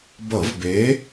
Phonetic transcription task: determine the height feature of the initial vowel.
mid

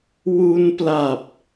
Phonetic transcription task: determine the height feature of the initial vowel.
high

